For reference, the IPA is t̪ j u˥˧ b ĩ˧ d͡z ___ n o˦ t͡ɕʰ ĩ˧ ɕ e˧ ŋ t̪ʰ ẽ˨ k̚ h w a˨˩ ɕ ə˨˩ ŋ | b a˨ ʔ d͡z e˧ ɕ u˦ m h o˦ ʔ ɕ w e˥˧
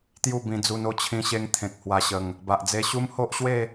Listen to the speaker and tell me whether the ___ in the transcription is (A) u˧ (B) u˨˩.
A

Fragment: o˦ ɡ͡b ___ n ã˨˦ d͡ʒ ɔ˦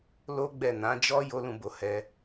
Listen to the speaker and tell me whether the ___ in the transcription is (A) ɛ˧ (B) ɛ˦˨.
B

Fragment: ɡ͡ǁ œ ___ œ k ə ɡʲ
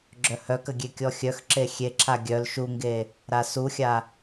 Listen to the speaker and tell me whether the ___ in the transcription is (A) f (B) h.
B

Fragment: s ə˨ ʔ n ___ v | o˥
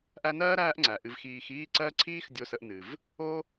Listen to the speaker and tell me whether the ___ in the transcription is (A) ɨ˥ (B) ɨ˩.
B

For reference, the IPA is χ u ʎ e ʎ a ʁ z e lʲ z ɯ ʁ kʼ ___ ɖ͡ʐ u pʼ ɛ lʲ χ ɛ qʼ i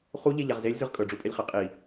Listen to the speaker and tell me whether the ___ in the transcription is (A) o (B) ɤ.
B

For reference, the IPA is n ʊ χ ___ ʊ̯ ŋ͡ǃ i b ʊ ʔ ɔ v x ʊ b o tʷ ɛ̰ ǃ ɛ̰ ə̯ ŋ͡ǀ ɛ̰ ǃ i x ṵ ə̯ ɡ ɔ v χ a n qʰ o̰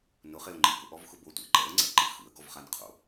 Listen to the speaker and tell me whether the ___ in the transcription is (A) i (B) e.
B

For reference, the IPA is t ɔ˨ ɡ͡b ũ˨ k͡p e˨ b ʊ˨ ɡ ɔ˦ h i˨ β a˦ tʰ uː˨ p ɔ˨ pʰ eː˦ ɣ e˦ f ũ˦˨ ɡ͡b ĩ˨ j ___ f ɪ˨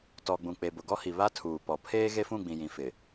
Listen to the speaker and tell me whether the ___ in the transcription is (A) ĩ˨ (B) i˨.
A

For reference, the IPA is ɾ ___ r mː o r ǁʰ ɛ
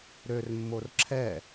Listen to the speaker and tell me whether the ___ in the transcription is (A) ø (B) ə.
A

